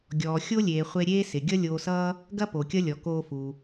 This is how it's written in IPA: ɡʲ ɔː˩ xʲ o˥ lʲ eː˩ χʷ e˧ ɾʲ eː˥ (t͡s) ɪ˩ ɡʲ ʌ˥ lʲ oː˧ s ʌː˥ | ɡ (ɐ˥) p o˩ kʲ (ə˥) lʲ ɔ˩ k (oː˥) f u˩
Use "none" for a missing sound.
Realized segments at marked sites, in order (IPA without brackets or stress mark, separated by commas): s, ɐ˥, ʌ˥, oː˧